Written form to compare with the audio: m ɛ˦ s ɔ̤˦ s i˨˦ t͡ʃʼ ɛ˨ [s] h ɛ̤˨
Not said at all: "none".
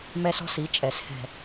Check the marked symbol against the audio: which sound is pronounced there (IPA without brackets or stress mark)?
s